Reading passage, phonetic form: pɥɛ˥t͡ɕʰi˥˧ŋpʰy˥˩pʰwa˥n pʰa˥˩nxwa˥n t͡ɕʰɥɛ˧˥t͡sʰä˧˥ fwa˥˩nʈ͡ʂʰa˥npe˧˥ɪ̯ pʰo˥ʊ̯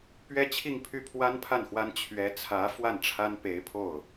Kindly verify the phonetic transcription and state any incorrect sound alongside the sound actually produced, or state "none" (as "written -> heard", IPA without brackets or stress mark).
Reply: o˥ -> o˥˩